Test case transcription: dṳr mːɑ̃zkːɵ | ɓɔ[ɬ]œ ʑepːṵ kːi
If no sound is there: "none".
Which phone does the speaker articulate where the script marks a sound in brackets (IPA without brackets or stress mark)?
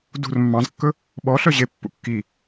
ɬ